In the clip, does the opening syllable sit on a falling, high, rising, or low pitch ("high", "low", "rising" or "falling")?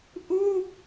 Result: falling